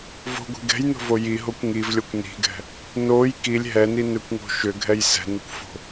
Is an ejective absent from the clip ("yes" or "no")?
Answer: yes